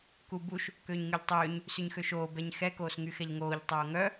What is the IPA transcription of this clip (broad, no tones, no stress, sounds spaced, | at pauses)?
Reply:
k u b u ʃ | k øː ɲ ŋ y ʎ tˤ øː ɲ | s y ɲ x ø ʃ oː b ɛ ɲ x ɛ k oː s ŋ y x ɛ ʎ ŋ oː ʎ tˤ oː ŋ œ